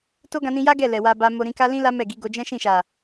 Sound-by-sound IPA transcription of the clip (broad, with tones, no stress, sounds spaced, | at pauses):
t o˦ ɡ ã˧ n ĩ˧ j a˦ ɡ ɛ˦˨ l ɛ˨ w a˧ b a˦ m o˦ ɾ ĩ˧ k a˦ l ĩ˦ l a˦ m ɛ˦˨ ɡ i˨˦ ɡ o˧ d͡ʒ ɛ̃˦ ʃ ĩ˦˨ ʃ a˨